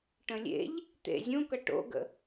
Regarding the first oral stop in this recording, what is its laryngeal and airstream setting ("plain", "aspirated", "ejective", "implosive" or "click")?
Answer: plain